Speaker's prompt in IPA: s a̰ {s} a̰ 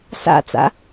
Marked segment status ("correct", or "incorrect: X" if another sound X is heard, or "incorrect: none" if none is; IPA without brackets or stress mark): incorrect: t͡s